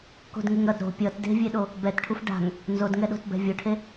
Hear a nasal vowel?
no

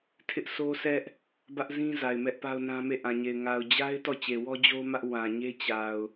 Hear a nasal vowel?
yes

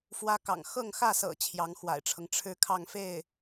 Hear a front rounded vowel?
no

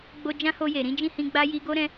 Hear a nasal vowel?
yes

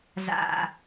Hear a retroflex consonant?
no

